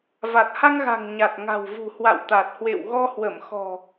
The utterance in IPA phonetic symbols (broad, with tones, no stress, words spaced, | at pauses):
va˨˩t̚ha˧ŋɣa̤˨˩ŋ ɲa˨˩t̚ŋa̤˨˩wvṳ˨˩ hwa̰˧˨wt̪a˨˩t̚ hwḛ˧˨w ɣɔ˧hwə˧˩mxɔ̤˨˩